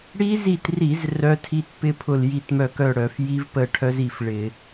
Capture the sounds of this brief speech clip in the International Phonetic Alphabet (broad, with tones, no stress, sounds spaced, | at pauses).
ɽ i˦˥ z i˦˨ t r i˧˩˧ z r œ˦˥ tʰ i˦˥ t p ɪ˦˥ pʰ ʊ˦˨ l j i˦˨ t m œ˦˨ k œ˦˨ ɽ œ˧˩˧ f j i˦˥ v p ə˦˨ ʈʰ œ˦˥ z i˦˨ f ɭ ɪ˧˩˧